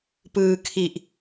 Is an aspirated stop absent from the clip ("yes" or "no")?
no